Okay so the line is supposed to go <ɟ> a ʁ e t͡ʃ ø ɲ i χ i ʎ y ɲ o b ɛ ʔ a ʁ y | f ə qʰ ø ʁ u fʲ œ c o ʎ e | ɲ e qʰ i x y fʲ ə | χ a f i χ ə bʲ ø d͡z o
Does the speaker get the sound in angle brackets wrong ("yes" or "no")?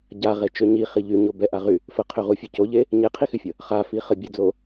no